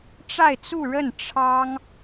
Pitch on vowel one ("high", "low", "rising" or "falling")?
falling